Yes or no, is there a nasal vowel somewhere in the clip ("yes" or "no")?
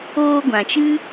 yes